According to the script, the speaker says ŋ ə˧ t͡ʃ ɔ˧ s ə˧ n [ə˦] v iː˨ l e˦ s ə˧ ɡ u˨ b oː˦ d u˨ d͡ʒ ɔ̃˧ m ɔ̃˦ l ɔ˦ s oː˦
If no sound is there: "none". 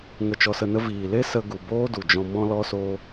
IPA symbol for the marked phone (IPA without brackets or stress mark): ə˦